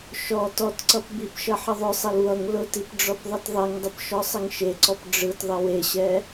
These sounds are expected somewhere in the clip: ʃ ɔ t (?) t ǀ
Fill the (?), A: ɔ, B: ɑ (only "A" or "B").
A